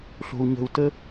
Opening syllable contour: low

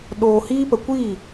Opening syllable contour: low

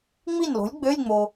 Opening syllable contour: falling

